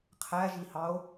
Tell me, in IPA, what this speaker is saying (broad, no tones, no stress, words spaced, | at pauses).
qʰæʒihɑo̯